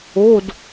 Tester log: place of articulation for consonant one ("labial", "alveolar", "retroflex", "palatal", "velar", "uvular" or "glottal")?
alveolar